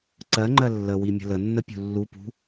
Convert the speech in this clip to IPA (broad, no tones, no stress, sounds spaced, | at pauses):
ǀ ɜ ŋ͡ǃ ɜ lː ə w i mʲ ə̤ l ə nː ə pʲ ṳ lː u p ṳ